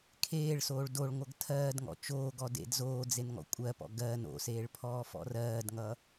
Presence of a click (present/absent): absent